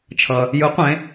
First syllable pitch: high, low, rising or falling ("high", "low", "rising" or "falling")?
low